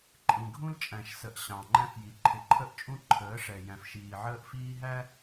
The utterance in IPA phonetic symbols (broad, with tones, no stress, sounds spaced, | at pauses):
ǃʼ ĩ˨ ɡʱ ũ˦ l t͡ʃʼ æ̃˨ ʃ s ə˨ ʔ ɕ ɑ̃˨ ŋ͡ǃ æ̃˦ f j i˨ ǃʰ ɪ˨ ǃʰ ə˦ ʔ t͡ʃʼ ũ˦ ǃʰ əː˨˦ ʂ ɛ˨ j æ̃˨ f ʃ iː˨ ʕ əː˦ ʔ f iː˦ ɦ æ˦